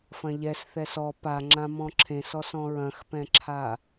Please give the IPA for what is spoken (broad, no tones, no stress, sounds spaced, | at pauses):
f ɐ̃ ʎ ɛ s θ ɛ s ɔ p a ŋ͡ǁ ã m ɔ̃ ǁʰ ẽ s ɔ s ɔ̃ ɹ ɐ̃ x p ɛ̃ ǁʰ a